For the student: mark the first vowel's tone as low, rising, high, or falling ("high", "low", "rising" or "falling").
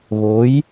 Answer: rising